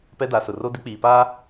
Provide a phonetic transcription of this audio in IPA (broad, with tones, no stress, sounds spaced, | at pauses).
p ɛ˦ d a˨˦ s ʊ˨ r o˦ d ɪ˦ k͡p iː˨ p aː˦